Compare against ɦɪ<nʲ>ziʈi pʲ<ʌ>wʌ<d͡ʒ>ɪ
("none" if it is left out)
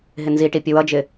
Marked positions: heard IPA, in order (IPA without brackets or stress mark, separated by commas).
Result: n, ə, d͡ʒ